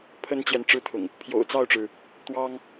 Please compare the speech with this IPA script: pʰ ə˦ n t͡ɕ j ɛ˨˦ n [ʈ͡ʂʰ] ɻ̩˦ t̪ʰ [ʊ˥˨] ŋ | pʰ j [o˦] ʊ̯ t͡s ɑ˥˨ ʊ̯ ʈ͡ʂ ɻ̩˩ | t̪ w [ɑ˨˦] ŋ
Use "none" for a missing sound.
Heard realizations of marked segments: ʈ͡ʂ, ʊ̰˨˩, o̰˨˩, ɑ˦

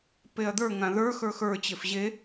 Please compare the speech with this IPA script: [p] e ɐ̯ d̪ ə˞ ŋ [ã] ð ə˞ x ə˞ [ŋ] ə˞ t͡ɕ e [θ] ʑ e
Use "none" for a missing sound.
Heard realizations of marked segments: p, ã, x, f

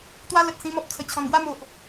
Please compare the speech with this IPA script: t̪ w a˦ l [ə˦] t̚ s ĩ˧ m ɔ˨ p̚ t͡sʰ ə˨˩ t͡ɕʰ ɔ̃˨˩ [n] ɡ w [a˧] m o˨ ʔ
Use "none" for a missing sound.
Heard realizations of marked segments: ə˨, n, a˥˧

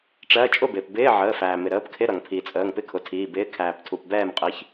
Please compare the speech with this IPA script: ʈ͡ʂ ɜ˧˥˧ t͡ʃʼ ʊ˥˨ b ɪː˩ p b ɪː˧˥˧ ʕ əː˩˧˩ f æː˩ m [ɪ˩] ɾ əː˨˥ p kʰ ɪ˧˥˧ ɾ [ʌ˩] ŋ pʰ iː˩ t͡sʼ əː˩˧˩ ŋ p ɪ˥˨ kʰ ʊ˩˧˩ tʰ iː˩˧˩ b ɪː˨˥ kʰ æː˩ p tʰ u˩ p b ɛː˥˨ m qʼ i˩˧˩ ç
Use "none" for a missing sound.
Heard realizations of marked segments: ɪ˩, ʌ˩

